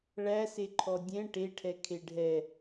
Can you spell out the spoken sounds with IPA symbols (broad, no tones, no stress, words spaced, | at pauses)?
ɭæse ǃʰɔdʲɛ̃ ʈeʈʰɛ kʰeɖʱɛ